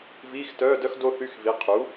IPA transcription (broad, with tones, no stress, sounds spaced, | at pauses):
v iː˧˥˧ x t œː˧˥˧ d œ˥ x d o˥ θ y˧˥˧ x v i˩˥ qʰ u˩˥